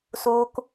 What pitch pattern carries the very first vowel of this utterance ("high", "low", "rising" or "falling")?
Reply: high